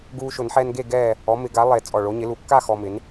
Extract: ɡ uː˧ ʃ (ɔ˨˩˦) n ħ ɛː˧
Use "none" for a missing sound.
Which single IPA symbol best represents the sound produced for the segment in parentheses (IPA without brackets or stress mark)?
ʊ˨˩˦